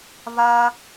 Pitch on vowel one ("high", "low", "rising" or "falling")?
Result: high